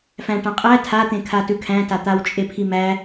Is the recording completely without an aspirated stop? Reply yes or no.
no